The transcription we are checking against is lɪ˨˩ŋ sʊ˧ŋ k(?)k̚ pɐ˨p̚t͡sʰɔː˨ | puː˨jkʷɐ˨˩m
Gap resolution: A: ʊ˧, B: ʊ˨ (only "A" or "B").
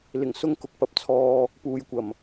B